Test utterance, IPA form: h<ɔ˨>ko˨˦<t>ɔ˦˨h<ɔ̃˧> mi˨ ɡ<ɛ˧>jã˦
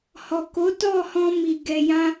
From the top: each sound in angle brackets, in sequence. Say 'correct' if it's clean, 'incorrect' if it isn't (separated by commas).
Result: correct, correct, correct, correct